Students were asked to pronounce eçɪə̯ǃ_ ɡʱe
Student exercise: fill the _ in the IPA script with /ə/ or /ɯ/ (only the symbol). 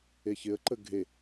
ə